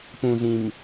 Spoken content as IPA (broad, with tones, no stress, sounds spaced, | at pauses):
p ũ˨ z ĩ˨ m